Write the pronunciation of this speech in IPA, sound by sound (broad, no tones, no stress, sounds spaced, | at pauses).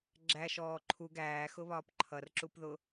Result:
ɡ͡ǁ æ ʃ ɔː ǃʰ u ɡ æː x ʊ β ɒː p ǃʰ ʌ r ǁ u p ð ʊ